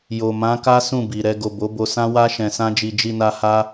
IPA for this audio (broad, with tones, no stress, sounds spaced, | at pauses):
j o˨ m ã˨˦ k a˦ s ũ˦˨ b i˨ ɾ ɛ˧ ɡ o˨ b o˨˦ b o˧ s ã˦ w a˦ ʃ ɛ̃˧ s ã˦ d͡ʒ i˧ d͡ʒ i˧ n a˧ h a˦